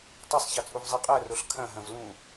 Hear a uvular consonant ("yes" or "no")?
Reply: yes